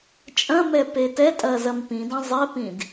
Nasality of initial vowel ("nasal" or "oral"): nasal